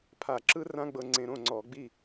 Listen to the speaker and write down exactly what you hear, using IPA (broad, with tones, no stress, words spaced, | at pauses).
pʰa˧˩˧ǁɯ˦rã˦ ɡ͡bɤ˦ŋ͡ǀẽ˦ ɾõ˥˨ŋ͡ǀɔ˧˩˧ ɡ͡bi˥˨